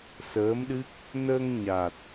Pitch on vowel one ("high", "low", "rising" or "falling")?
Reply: rising